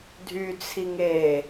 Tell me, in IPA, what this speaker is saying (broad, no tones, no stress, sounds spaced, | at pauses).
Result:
dʱ y t͡sʰ i ŋ e